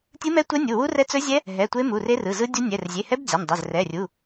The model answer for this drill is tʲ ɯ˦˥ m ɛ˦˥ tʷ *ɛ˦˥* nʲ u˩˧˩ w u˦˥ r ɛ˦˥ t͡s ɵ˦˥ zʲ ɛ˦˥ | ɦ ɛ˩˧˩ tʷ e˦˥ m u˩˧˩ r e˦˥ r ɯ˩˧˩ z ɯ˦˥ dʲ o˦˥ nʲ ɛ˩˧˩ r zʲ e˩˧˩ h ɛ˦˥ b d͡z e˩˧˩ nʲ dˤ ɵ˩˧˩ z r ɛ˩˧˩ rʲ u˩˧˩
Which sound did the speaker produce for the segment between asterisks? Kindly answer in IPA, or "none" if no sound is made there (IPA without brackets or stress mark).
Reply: ɛ˦˥